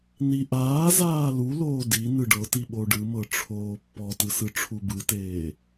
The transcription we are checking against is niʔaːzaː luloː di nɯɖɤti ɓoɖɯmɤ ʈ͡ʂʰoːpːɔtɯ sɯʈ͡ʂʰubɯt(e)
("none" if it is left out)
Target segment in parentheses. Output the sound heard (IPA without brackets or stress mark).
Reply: eː